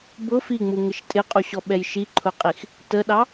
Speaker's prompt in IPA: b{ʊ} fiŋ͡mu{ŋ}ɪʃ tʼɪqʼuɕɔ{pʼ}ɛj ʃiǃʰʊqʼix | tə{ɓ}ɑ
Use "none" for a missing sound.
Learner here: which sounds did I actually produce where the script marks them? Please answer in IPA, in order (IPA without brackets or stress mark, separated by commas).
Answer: ʊ, ŋ, ɓ, ɗ